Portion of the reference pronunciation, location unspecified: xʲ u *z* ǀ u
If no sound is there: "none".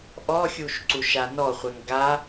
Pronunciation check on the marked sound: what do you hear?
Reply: ʃ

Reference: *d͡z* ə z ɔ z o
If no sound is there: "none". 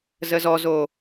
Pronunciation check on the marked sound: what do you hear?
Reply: z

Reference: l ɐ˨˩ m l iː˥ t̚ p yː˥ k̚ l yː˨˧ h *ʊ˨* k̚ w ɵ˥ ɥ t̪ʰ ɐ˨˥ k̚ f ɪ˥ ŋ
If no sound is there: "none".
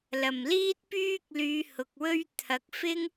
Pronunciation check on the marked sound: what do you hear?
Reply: ʊ˨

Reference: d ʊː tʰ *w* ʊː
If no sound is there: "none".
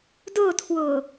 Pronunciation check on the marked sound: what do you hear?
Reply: w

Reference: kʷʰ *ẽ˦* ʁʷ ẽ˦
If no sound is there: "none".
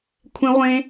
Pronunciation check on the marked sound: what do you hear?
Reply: ẽ˦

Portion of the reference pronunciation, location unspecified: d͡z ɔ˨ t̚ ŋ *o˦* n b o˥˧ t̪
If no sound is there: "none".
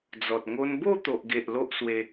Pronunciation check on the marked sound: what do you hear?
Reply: o˦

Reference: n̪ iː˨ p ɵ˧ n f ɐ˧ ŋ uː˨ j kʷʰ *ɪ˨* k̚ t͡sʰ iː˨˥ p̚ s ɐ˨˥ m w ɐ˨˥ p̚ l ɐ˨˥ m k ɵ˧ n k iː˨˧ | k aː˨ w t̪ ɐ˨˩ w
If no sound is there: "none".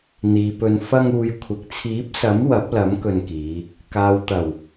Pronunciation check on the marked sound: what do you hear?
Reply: ɪ˨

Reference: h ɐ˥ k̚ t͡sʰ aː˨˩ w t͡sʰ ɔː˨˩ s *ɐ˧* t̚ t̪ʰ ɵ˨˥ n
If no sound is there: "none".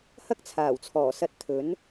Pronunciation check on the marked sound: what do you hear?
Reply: ɐ˧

